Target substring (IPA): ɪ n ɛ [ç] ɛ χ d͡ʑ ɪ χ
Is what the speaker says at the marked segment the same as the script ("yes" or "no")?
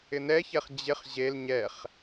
yes